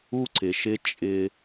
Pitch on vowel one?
high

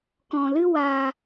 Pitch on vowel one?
low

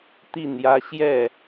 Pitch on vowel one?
falling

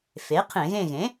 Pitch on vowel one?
rising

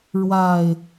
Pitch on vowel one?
low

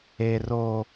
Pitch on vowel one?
low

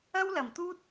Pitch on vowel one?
high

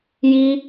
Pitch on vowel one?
high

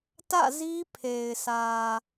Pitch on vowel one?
falling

